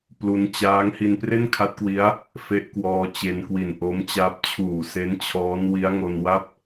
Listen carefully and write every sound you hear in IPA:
p l u˦˥ n t͡ɕ aː˦˥ ŋ h i˧ n p r e˥˩ n kʰ a˦˥ t̚ k w i˦˥ a̯ | f e˦˥ ʔ k w ɔː˧ t͡ɕ e˧ n k w i˨˩ n ʔ o˦˥ m t͡ɕ a˦˥ p̚ t͡ɕʰ uː˨˩ s e˦˥ n t͡ɕʰ ɔː˦˥ n w i˦˥ a̯ ŋ o˧ n w a˥˩ p̚

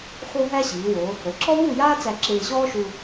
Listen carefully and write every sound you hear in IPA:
x o˥ ɦ æ˥ ɕ iː˩˧ w o˩˧ | ə˩˧ ǁ ɔ˥ w uː˥˧ j aː˥ t͡s æ˧ ǁ ɪː˧ ɕ ɔː˥ ʃ u˧

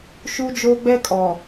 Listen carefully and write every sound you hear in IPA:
ʃ u˦ d͡ʒ oː˦ ɡ͡b ɛ˦ kʼ ɔ˨

